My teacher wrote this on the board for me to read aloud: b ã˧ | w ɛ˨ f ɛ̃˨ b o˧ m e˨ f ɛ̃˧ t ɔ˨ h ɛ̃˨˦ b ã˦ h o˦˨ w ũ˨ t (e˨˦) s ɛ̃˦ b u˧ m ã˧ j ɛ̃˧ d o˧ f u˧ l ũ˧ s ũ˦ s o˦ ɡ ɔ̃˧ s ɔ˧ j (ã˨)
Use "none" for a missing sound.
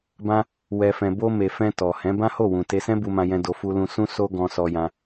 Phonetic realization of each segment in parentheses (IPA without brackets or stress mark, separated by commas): e˧, ã˧